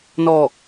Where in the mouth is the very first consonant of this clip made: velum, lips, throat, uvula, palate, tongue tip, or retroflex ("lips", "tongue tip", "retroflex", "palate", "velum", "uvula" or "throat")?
tongue tip